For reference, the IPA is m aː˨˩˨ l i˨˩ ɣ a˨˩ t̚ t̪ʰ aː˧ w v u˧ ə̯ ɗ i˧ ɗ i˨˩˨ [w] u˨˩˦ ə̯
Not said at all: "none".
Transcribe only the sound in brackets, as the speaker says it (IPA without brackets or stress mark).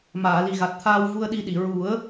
ɹ